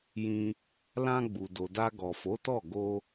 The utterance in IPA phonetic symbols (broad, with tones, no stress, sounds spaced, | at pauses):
j ĩ˧ | l ã˧ ɡ͡b u˨ d o˨ d a˧ ɡ ɔ˨ f o˨˦ t ɔ˦˨ ɡ o˧